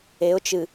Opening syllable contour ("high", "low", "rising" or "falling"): rising